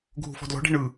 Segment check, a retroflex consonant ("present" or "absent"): present